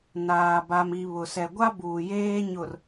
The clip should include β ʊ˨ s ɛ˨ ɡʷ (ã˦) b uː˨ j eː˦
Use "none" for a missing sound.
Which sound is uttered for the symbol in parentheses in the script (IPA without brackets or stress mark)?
a˦